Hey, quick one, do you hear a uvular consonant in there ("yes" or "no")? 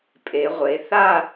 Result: yes